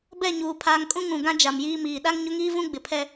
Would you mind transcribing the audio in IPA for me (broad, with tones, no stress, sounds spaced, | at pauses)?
b ɛ˦˨ ɲ uː˨ pʰ aː˨ ŋ kʼ ũ˦ ŋ ũ˨ ɡ ã˦ d͡ʒ a˨ m j iː˦ m iː˨ ɗ a˦ ŋ ɲ ʊ˦ ŋ iː˦ v ũ˦ ɡ͡b ɪ˨ pʰ ɛ˦